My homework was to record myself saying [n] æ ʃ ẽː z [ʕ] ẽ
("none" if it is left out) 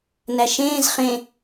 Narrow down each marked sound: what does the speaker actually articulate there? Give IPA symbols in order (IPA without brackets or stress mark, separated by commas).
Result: n, χ